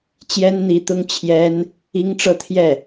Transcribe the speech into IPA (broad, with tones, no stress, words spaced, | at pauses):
t͡ɕjɛ˥nn̪i˧˥t̪ʊ˥ŋ t͡ɕʰjɛ˥n | i˥ŋʈ͡ʂɤ˥˧ t̪ʰjɛ˥˩